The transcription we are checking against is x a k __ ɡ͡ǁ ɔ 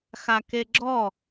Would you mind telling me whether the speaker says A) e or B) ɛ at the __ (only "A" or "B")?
A